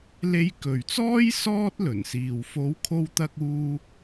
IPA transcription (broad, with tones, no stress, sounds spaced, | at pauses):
l e˧ j k ɵ˨ ɥ t͡s ɔː˥ j s ɔː˥ t̚ l ɵ˨˩ n s iː˨ w f o˨˥ w kʰ o˧ w t̪ ɐ˧ k̚ uː˧